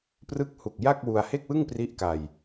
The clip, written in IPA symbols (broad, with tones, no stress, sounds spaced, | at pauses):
p r ɯ˦˥ k̚ h u˨˩ k̚ j a˥˩ k̚ w u˧ a̯ h e˥˩ k̚ w ɯ˥˩ ŋ p r i˦˥ ʔ k a˧ j